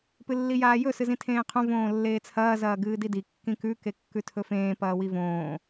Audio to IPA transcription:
p ɨ lː i j aː j ɵ s ɨ z ĩ tʰ ẽː qʰ õ v õː lː eː t͡sʰ ɐː z ɐː ɡ ɨː d i d i kː ĩ k ʉ k e kː ʉ tʰ ɵ f ẽː p ɐː w i v õː

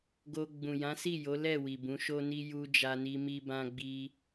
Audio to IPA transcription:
ɡ o˧ ɡ͡b ũ˨ j ã˨˦ s i˦˨ j o˨˦ l ɛ˦˨ w i˨ b ũ˨˦ ʃ o˦ n i˦ j u˧ d͡ʒ a˧ n i˧ m i˧ b ã˧ ɡ͡b i˧

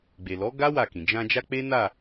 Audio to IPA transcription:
ɡ͡b e˨ l ɔ˨˦ ɡ a˦ w a˦˨ k ĩ˨ d͡ʒ ã˧ d͡ʒ a˦ k͡p e˦ n a˦˨

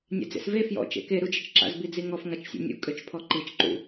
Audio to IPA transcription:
nʲ a̰ d͡z ḛ s v e f j ɔ̰ t͡ʃ ḛ k e ɾ u d͡ʒ ɪ t͡ʃ ǁ a̰ z b i d͡z i ŋ ɔ f ŋ a t͡ʃ sʲ o̰ nʲ ṵ kʼ ø t͡ʃ pʰ ɔ ǃ i t͡ʃ ǃ ṵ

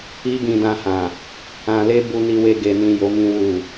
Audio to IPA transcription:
i˦ ɡ ĩ˧ d ã˧ h ã˨ | ã˧ l e˦ b u˧ n i˧ w e˧ ɡ e˨ n ĩ˨ j o˨˦ m ĩ˧ w u˨

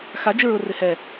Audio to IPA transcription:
x a d͡ʒ ɪ ɹ ʊ r ɪ h ɛ

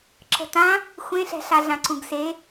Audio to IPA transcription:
ǁ ə̤ t ã | xʷ ẽ ɬ ɛ̤ ɬ a ɮ ã ǀ ũ ɡ s e

